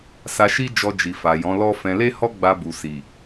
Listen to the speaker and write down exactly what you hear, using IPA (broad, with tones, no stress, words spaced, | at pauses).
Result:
sa˧ʃi˦ d͡ʒɔ˧d͡ʒi˨fa˨jɔ̃˨˦ lɔ˦fɛ̃˧ le˦hɔ˦ɡ͡ba˧ bu˨si˨